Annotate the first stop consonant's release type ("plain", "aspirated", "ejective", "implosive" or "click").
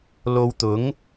plain